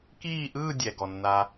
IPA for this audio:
k iː˦˨ ʔ ɯː˦˨ dʲ ɛ˨ ɡ ɔ˨ nː a˧

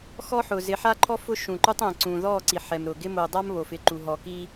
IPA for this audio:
x ɔ˦ ħ ʊ˨ z ɪ˨˦ ħ a˦ ǃʰ ɔ˦ f ʊ˦ ʃ ũ˨ ǃ u˦ tˤ ɛ̃˨ ǀ ũ˨ ð ɔ˦˨ ǀ i˨ ħ ɛ˨ m ɾ ʊː˨ ɡ ɪ˦ m o˨ dˤ a˦ m β o˨ f ɪ˨ ǃ u˨ ɦ ɔ˨ k i˦

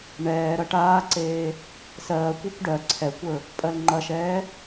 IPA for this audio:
ɳ ɛː ɾ ɐ ʈ aː ǀ eː | s ɜː kʷ ɜ kʷ ɖ ɜ ǀʰ ɛ kʷ ə˞ | pʼ ɜ l ŋ͡ǃ ɐ ʃ ɛː

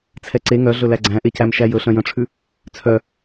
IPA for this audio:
t͡sʰ ɛ ǀ e ŋ œ ɮ ɵ l æ ɡ͡ǀ æ̃ ʔ e c æ m ʃ æ j ɵ ɬ œ̃ j œ̃ ʈ͡ʂʰ ʉ | t͡sʰ œ

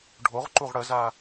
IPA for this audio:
ɖʱ o ʁ ǃ u ʁ ɽ ə z a

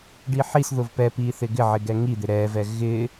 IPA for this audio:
ɖ i ħ i s ð ʊ v p ɛ p i θ ɪ ɡ ɪ ʕ ɪ ɡ ɛ ŋ i d̪ ɪ ɾ ɛ v ɛ ɣ ɪ

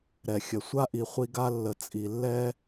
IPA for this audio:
ɾ ɛ˩ xʲ ə˩ sʷ a˥ ʔ i˨ χʷ i˦ ɡ a˥ lː ə˨ t͡sʼ i˩ lː ɛ˥

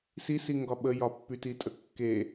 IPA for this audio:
s i s i ŋ ɡ ɒ ɓ ə j ɒ pː y t i tʼ ə kː e

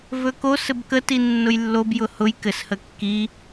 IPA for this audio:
v ɵ k o s ɘ b k ə t i nː ʊ j lː o b j ʊ h ʊ j k ɘ s h ə kː i

